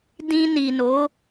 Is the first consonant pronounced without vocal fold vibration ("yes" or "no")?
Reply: no